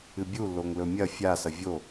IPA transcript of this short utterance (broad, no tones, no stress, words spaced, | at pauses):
ɨbʲu loŋlɵmʲɐ fʲa sɐvʲo